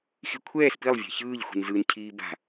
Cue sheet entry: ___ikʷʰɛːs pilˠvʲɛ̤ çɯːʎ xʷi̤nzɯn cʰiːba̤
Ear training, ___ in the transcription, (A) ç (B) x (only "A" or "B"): B